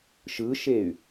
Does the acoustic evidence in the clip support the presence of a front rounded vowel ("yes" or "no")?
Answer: yes